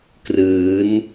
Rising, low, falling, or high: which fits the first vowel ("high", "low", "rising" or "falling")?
rising